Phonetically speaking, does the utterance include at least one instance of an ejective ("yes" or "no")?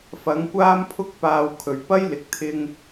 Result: no